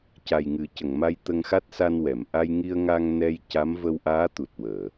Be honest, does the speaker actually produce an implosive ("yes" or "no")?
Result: no